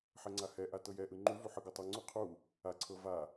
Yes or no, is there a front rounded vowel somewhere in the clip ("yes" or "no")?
no